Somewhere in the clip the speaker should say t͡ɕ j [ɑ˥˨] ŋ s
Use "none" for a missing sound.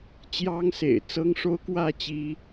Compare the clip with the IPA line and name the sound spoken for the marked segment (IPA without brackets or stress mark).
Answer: ɑ˦